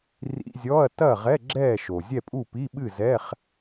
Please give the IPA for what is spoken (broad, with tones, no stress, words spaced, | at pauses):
rḭ˧˥˧zʲɔ˧˥˧ɐ̯ tɐ˥˨ʁɛ˧˥˧ ɡ͡ǁɛː˥˨ʃo˩zʲɛ˥˨pʼu˥˨ pi˧˥˧ɓɨ˥˨zɛ˧˥˧χ